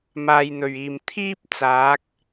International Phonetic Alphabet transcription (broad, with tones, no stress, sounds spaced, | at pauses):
m aː˨ j n̪ ɵ˨˩ ɥ iː˨˩ m t̪ʰ iː˥ p̚ t͡s aː˨˥ k̚